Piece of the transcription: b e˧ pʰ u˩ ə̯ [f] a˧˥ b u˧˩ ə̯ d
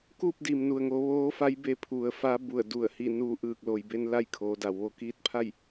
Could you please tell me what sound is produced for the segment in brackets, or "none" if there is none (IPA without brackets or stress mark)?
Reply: f